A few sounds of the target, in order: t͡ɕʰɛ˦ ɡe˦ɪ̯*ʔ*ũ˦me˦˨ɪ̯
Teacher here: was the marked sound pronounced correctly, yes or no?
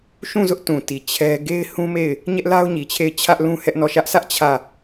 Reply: no